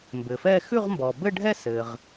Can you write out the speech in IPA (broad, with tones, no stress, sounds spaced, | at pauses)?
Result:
m b ɘ˩ f ɛ˥˧ x ʉ˥˧ ʁ m b ɔ˩ b ɘ˥˧ ɖʱ ɛ˥˧ s ɘ˩ ʁ